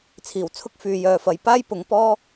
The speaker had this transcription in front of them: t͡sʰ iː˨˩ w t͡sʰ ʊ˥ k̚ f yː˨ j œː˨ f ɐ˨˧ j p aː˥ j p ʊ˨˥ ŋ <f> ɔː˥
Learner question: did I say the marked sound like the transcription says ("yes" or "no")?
no